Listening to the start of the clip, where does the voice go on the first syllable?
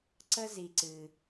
high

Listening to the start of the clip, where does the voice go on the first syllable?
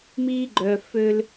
high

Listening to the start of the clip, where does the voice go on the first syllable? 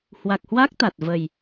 low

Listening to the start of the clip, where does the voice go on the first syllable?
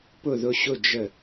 falling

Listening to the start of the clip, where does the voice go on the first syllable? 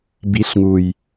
rising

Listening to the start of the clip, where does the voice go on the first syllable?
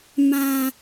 low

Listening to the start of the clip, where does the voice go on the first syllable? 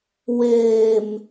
low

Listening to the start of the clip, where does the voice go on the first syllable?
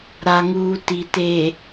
low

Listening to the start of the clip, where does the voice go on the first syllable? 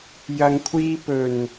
low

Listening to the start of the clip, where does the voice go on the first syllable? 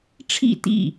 falling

